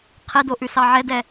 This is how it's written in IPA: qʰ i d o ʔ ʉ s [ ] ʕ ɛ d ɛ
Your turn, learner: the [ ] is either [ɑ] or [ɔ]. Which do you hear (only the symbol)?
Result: ɑ